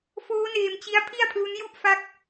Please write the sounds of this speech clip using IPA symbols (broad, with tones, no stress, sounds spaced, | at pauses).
f oː˦˥ n eː˧ m t͡ɕ i˦˥ a̯ pʰ i˥˩ a̯ pʰ l u˦˥ n j u˥˩ ʔ f a˦˥ k̚